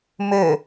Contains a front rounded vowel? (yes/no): yes